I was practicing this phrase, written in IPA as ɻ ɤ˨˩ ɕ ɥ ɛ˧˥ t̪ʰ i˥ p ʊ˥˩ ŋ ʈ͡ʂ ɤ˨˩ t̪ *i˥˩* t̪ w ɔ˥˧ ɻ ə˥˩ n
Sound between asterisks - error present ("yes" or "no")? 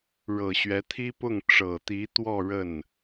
yes